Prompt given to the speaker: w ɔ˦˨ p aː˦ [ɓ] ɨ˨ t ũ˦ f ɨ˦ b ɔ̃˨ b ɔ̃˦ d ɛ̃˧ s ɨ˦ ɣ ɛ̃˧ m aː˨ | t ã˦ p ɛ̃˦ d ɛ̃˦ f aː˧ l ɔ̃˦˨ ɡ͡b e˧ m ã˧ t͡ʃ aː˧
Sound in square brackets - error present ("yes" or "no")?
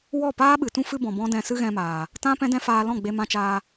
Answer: no